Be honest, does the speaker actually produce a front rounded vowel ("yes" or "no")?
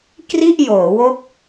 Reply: no